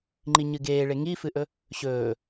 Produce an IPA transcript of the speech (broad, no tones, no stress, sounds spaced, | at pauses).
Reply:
ŋ͡ǃ i ɲ ɨ ɡ eː ɭ e ŋ i f ɨ ʔ ɵ | ɕ ɵː